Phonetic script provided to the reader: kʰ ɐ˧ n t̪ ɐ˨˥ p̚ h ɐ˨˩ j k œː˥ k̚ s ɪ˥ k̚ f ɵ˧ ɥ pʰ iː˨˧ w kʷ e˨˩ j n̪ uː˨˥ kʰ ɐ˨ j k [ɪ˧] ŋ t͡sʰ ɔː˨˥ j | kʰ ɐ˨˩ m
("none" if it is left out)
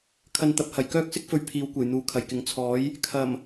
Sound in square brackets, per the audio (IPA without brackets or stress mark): ɪ˨˥